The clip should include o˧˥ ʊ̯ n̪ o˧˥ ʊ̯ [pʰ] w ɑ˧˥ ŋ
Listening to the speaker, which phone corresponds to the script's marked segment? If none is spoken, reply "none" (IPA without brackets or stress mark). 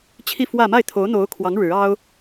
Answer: kʰ